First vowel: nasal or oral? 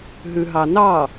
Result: oral